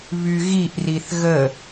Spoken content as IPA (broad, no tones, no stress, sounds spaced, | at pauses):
β y ɣ i ʔ r i θ ɣ ə